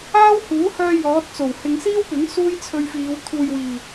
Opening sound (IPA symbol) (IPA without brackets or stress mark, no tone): aː